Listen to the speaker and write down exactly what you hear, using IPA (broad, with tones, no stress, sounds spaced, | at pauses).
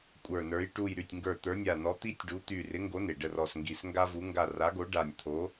kʷʼ ə˞˧˩ n ə˞˨˥ j ʈ u˧˩ j ɾ y˧˩ tʲ ŋ ɡ ə˞˧˩ t̪ ə˞˨˥ nʲ a˧˩ n ɔ˨˥ t̪ i˦ tʲ ɖ u˨˥ t̪ y˧˩ r ɪ˨˥ ŋ ɡ o˨˥ n ɪ˩ ɖ ə˧˩ r ɔ˧˩ s ŋ ɡ i˧˩ s ŋ ɡ a˦ v u˨˥ ŋ ɡ a˧˩ r a˨˥ ɡ o˨˥ ɖ a˧˩ nʲ t̪ʰ o˨˥